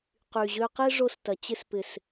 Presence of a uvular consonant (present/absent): present